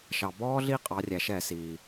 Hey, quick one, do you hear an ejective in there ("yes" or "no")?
yes